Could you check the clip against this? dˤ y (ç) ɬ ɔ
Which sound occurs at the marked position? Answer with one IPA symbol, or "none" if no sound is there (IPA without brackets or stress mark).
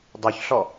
ç